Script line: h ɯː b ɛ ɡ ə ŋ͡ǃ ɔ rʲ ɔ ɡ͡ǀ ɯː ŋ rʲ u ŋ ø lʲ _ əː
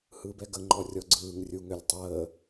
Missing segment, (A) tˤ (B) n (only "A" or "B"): A